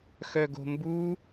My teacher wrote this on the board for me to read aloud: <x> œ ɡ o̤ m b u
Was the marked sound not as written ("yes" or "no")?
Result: no